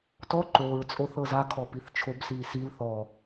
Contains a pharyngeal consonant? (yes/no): no